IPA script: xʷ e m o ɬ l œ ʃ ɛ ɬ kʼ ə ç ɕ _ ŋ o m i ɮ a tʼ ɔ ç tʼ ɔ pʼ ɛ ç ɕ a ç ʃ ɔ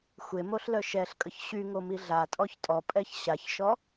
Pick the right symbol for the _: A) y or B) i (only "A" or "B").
A